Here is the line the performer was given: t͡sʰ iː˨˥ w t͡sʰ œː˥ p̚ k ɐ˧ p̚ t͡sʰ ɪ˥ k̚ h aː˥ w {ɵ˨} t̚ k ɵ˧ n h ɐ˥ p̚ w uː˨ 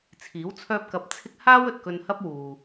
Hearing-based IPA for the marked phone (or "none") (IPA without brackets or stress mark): ɵ˨